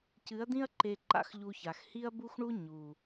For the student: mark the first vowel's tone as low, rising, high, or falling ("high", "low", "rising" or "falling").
rising